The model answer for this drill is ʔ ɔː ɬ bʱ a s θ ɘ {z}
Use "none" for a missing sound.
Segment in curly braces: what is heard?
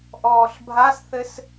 s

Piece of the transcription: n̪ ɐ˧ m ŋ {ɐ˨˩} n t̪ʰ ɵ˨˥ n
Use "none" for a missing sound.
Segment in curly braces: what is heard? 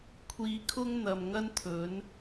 ɐ˥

